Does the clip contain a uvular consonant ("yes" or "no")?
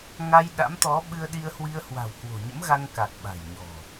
no